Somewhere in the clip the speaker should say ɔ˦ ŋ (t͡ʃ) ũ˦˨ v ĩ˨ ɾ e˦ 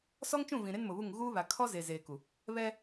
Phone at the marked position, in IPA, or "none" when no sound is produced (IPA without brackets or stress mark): t͡ʃ